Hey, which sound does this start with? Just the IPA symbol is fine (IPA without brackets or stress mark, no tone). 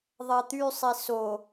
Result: ðˤ